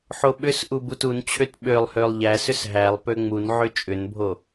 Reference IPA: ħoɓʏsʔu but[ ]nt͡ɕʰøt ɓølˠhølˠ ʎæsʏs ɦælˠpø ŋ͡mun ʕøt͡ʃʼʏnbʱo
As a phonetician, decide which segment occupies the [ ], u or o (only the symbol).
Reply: u